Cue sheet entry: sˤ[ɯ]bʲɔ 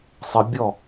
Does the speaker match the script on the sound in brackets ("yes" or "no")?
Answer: no